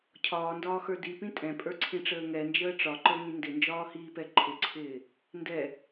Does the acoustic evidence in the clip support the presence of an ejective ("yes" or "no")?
yes